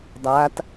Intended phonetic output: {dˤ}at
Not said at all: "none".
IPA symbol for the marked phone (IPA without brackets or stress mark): dˤ